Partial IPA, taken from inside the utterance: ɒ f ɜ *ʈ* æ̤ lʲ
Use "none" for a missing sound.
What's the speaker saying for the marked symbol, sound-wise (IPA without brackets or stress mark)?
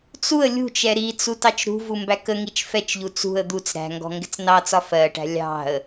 ʈ